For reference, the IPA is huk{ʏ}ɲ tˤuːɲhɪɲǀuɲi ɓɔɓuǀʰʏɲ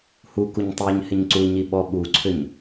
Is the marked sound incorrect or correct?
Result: incorrect